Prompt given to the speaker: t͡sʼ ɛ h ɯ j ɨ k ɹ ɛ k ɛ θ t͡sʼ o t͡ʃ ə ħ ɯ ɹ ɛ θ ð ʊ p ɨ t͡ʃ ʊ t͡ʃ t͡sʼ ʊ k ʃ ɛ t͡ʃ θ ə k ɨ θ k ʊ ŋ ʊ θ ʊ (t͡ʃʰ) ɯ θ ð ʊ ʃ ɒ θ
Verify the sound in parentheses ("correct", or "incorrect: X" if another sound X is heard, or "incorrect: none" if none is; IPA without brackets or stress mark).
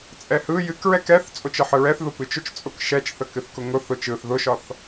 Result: incorrect: t͡ʃ